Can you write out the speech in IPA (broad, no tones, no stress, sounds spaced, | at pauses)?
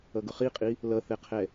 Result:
ʌ ɡ ʊ χ i qʼ i | l ʌ θ ɛ qʰ ɛ